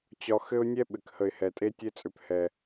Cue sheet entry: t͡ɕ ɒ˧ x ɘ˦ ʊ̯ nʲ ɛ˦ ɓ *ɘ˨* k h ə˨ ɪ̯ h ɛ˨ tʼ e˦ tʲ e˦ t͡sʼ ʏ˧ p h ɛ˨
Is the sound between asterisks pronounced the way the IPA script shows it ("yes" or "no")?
yes